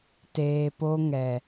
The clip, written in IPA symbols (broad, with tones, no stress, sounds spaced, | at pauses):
t eː˨ p o˧ ŋ ɛ˨